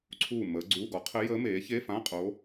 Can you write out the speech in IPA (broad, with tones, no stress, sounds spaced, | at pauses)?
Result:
ǀʰ uː˥˨ m əː˧˥ ɡ͡ǀ uː˧˥˧ ɡ ɔ˩˥ qʰ ɘ˧˥ j əː˧˥ m eː˩˥ ç e˧˥˧ f ã˧˥˧ qʼ o˧˥